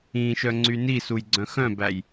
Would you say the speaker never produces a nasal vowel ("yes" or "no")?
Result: no